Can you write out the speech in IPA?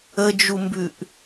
ə d͡ʒ u m b ʉ ʔ

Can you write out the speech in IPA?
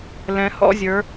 l ɛ̃˩˧ h ɔ̰˥˨ zʲ ə˞˩˧

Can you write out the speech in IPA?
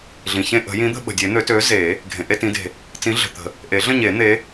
ɮ ĩ˩ ç ẽ˥˧ ʔ ə̤˨˩˦ j ĩ˨˥ d̪ ə̤˥˧ ɓ ə̤˩ dʲ e˨˩˦ n̪ ø˨˩˦ t ø˨˥ z e˨˩˦ | ɡʱ ẽ˩ ʔ e˥˧ t ĩ˨˥ d e̤˩ | t͡s ĩ˨˥ ɮ ə̤˩ t̪ ə̤˨˩˦ | ʔ e˨˩˦ ɮ ə̃˥˧ ɲ e˨˩˦ n̪ e˨˥

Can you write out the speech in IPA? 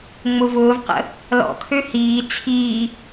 ŋ͡m ʊ v ʊː v q ə̰ | l ɔ̰ kʰ ø h iː t͡sʰ iː

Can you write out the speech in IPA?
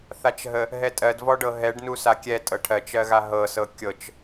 θ a t͡ʃ ɦ ə | ɦ ɛ tʼ ɜ d v ɔ ɖ ɤ ɦ ɛ ɖ n u s a kʲ ɛ tʼ ɤ ʈʰ ɜ t͡ʃ ɜ ɣ a ɦ ɤ s ɤ kʲ ɤ t͡ʃ

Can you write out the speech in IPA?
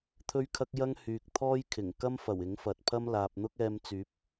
t̪ʰ ɵ˥ ɥ kʰ ɐ˥ k̚ j ɐ˥ ŋ h yː˨ k̚ t̪ʰ ɔː˥ j kʰ ɪ˨˩ ŋ k ɐ˥ m f ɐ˨˩ w ɪ˨˥ ŋ f ɐ˨ t̚ pʰ ɐ˥ m l aː˨ p̚ n̪ ʊ˥ k̚ ɛː˧ m t͡s yː˨˥ p̚

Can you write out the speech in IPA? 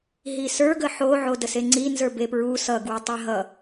ɦ i s ə˞ ɡ ə ħ o ʕ o d ə s e ŋ͡ǀ i n z ə˞ b e p ɹ u s ʌ ɡ w u tˤ ɛ ɦ ʌ

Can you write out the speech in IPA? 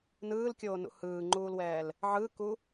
n ɯː l kʲ oː n ṵ h ɯː ŋ͡ǃ uː l w ɛː l | ʕ ɯ k u

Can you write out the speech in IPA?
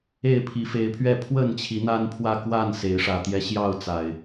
e˥˨ ɪ̯ pʰ i˨˦ f e˨˦ ɪ̯ pʰ ɥ ɛ˥˨ pʰ w ə˥˨ n t͡ɕʰ i˨˦ n̪ a˦ n pʰ w ä˥˨ k w a˥˨ n s e˨˦ ɪ̯ ʂ ä˨˩ t̪ j ɛ˨˦ ɕ j ɑ˥˨ ʊ̯ t͡s a˨˩ ɪ̯

